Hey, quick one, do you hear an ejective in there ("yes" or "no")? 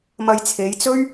no